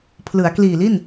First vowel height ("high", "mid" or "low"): high